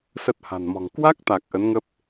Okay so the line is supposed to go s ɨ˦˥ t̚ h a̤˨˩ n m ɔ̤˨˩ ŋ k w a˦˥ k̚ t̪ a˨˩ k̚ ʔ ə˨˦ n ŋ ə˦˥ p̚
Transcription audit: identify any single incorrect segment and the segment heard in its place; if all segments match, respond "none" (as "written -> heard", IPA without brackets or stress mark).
ɨ˦˥ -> ə˦˥